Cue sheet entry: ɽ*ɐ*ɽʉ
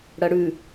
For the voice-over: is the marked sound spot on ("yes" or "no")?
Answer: yes